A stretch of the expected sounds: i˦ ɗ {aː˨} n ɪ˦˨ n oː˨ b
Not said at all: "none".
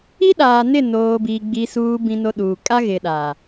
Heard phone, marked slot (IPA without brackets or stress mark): aː˨